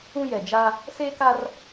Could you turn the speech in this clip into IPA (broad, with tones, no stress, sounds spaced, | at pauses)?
ũ˦ j ɛ˨ d͡ʒ a˦ | s e˦ k a˦ r